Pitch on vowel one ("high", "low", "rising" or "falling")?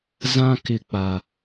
high